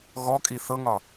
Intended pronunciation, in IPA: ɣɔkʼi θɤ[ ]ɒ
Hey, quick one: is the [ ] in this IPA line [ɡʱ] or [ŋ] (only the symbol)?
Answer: ŋ